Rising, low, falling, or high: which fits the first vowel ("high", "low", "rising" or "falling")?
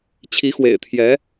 rising